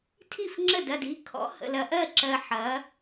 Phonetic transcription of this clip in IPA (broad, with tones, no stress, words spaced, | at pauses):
tʰi˥˩fŋ͡ǁə˥˩dɐ˥˩d i˨˥kʰɔ̰˨˥hə̰˨lɐ˨ ʔɜ˥˩ǁɜ˨ ħɐ˨˥